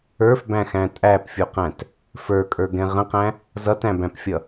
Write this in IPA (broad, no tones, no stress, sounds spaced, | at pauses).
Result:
ə˞ f b æ̃ x æ̃ tʼ æ p fʲ u q æ̃ t | f ə˞ kʼ ə˞ ɡ ɛ̃ ʁ ə̃ q æ̃ | z ʌ t æ̃ b æ̃ p fʲ ʌ